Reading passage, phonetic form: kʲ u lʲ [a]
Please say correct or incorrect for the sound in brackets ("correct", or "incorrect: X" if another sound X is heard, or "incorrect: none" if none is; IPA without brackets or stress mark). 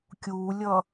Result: incorrect: ʌ